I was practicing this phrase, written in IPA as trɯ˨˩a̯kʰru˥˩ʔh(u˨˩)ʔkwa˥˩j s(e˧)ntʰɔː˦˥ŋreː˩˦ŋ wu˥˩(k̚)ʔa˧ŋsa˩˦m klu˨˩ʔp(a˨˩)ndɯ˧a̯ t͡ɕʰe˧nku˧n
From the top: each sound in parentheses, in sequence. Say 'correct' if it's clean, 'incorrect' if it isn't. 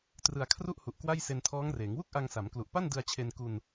correct, correct, correct, incorrect: a˥˩

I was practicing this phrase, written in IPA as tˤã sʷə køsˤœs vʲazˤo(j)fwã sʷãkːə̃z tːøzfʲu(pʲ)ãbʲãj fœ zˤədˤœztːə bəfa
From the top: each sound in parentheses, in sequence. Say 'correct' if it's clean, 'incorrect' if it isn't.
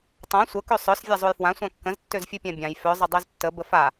correct, correct

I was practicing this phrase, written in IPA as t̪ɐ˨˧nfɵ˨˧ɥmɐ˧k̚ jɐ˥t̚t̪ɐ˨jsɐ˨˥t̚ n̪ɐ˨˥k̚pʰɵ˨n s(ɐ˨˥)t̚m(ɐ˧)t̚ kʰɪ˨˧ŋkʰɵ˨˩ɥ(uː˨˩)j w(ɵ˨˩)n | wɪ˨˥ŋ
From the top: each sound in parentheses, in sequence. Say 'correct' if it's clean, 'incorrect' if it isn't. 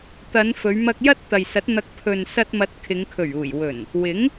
incorrect: ɐ˧, incorrect: ɐ˨˥, correct, correct

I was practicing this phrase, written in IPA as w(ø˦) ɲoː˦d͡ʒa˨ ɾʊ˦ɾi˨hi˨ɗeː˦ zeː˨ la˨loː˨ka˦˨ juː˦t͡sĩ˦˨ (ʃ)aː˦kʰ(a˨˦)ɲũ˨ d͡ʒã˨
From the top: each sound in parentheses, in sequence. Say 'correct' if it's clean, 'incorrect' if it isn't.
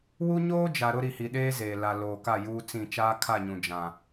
incorrect: u˦, incorrect: t͡ʃ, incorrect: a˦˨

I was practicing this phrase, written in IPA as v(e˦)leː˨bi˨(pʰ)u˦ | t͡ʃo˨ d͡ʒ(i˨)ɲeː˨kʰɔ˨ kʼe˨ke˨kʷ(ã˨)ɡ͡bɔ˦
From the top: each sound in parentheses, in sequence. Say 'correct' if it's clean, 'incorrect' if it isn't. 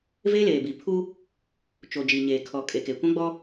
correct, correct, correct, incorrect: ã˦

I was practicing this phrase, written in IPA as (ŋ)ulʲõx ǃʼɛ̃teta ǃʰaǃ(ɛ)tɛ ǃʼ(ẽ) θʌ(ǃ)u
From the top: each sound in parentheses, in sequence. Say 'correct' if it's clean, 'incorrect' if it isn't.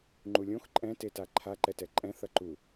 incorrect: ŋ͡ǃ, correct, incorrect: ɛ̃, correct

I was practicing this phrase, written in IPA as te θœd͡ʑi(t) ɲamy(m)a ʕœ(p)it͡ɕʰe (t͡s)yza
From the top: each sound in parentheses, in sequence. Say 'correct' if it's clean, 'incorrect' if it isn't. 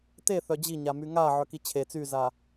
incorrect: none, incorrect: ŋ, incorrect: k, correct

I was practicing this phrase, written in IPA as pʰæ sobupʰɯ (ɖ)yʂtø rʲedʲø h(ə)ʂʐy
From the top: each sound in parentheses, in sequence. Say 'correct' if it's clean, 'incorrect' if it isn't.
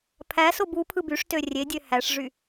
incorrect: b, incorrect: æ

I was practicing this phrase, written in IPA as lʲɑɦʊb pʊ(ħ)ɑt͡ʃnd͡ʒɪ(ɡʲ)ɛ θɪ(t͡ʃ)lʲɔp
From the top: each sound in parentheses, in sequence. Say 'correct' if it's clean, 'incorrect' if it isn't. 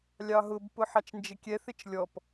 correct, incorrect: kʲ, correct

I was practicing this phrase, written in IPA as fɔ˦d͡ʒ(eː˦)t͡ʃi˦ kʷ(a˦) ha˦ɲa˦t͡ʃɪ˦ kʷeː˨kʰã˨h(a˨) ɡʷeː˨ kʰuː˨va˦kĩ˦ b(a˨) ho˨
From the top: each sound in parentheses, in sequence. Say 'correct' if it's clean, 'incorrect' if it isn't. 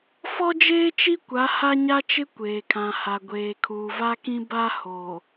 correct, incorrect: a˨˦, correct, incorrect: a˦

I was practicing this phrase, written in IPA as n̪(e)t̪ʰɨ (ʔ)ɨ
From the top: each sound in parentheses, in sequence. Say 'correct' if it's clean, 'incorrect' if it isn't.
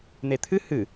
correct, incorrect: h

